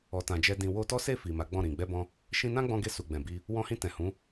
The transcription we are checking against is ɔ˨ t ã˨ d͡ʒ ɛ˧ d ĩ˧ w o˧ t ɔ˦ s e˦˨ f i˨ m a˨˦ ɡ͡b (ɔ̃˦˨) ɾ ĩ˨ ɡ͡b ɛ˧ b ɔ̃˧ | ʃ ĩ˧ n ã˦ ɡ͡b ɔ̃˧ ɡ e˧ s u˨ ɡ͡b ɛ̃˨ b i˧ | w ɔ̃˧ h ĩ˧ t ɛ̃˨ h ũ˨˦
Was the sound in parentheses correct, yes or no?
yes